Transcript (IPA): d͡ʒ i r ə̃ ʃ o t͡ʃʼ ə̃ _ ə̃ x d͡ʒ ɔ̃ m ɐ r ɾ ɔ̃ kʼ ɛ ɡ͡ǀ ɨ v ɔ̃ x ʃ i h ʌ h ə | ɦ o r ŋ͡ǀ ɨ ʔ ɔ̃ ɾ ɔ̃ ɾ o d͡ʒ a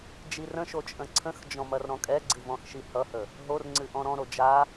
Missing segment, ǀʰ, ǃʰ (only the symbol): ǀʰ